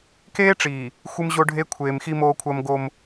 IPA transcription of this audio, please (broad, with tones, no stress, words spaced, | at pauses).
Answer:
keː˦ʈ͡ʂiː˨ | xʷɨ˦mʑo˦ɖʱe˦ kʷʰeː˨mxi˦ moː˦kʷʰɐː˦mɡo˦m